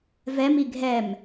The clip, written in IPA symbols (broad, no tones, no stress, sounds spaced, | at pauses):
v ɛ m i ɡʱ ɛ m